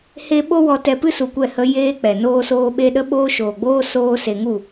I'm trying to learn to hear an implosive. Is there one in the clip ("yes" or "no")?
yes